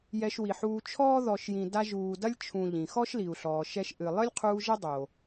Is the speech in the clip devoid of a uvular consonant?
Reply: no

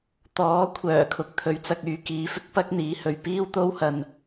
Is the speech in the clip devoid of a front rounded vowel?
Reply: no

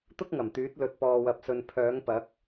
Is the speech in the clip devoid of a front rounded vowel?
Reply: no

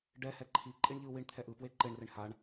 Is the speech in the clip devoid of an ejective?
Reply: no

